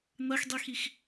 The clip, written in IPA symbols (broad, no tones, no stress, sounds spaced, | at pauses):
n̪ ɐ x dˤ i x i x